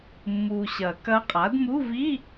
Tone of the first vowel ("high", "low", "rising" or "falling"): low